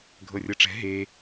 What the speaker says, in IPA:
ɡʱ ɤ rʲ ɤ ʈ͡ʂ ɛ̤ ɦ e

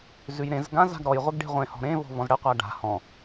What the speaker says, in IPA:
z ʉ j ɾ ẽ z ɡ ã z a̤ ɡ ɾ ɔ j ʁʷ ɘ ɡ ɖ e̤ ʁʷ ẽ h ɔ̤ ɾ ẽ v ɔ̤ v ɔ̃ z ɽ ɘ qʷ a ɖ a̤ h ɔ̃

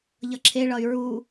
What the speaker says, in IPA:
ʎ ʌ ǁʰ e ɭ ʌ y̯ ɹ u

